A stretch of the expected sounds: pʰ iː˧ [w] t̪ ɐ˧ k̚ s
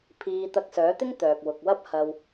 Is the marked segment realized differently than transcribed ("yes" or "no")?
yes